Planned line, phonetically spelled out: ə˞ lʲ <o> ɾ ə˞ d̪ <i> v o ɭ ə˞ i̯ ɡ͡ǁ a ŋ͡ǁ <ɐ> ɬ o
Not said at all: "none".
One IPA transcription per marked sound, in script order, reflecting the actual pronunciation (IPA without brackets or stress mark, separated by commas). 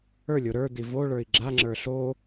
o, i, ə˞